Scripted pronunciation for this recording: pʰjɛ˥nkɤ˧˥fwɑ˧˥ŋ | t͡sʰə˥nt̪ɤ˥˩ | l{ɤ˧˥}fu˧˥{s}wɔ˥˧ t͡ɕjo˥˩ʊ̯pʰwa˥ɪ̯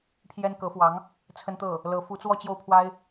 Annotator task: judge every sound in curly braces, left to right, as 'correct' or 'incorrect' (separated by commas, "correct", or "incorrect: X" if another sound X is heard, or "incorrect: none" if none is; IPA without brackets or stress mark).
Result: correct, incorrect: t͡s